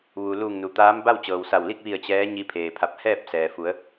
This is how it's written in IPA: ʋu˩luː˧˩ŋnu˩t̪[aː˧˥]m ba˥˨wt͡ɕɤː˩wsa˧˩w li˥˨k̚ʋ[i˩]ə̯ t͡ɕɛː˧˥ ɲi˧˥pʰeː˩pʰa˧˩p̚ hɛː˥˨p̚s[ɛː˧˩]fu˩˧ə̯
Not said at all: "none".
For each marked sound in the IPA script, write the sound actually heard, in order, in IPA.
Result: aː˧˥, i˧˩, ɛː˩

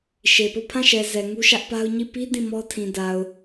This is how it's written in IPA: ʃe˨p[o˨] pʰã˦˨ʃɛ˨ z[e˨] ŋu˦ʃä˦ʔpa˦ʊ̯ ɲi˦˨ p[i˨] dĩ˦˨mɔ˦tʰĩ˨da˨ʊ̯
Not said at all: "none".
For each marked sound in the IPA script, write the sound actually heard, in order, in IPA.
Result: o˦˨, ɛ˨, i˦

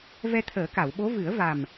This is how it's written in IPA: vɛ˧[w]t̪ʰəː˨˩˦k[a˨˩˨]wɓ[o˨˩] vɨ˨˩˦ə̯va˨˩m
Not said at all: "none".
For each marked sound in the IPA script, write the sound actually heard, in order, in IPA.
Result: none, a˨˩˨, o˧˥

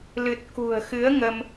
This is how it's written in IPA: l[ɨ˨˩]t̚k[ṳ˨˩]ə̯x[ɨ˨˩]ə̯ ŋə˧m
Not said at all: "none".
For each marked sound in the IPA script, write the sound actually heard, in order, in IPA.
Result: ɨ˨˩, ṳ˨˩, ɨ˨˦

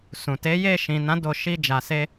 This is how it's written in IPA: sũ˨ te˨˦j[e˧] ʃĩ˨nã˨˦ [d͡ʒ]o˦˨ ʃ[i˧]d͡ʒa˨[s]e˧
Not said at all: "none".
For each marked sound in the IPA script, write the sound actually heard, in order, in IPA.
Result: e˦˨, d, i˧, s

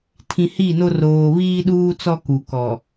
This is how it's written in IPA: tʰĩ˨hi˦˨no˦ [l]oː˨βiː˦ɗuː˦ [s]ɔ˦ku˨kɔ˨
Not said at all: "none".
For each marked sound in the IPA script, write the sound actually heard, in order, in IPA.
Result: r, t͡s

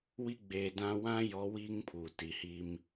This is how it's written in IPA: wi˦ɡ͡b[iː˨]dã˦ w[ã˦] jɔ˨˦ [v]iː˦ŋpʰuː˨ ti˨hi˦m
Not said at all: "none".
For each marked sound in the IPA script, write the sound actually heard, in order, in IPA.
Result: eː˨, ã˦, w

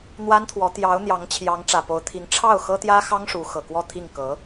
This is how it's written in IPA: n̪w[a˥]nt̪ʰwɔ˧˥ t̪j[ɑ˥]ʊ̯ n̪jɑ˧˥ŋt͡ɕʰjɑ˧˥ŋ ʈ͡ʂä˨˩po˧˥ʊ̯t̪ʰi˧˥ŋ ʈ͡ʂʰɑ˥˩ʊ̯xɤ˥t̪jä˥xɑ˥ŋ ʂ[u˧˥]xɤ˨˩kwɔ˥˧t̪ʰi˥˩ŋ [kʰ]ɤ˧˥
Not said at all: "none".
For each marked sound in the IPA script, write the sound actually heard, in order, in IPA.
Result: a˥, ɑ˧˥, u˧˥, k

